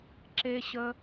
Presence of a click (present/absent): present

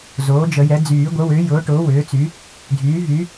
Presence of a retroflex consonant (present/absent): present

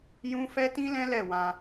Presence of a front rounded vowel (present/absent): absent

